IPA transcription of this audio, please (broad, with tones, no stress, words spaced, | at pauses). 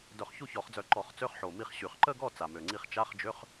dœ˧˩˧χçu˥˩çɔ˧˩˧χd͡zœ˧˩˧ ǃɔ˧˩˧χ t͡sø˧˥˧χħo˨˩ mi˥˩χɕy˧˩˧χ ǃə˥˧ɡɔ˥˩ t͡sa˨˩mø˨˩ŋ͡ǀi˥˩χ t͡ʃa˧˥˧χd͡ʒø˧˥˧χ